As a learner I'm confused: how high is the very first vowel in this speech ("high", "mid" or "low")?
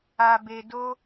low